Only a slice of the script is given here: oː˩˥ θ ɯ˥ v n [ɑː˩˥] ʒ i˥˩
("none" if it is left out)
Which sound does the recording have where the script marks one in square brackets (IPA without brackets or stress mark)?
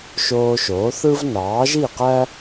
ɑː˩˥